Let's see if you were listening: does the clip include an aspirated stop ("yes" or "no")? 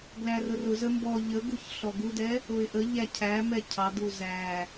yes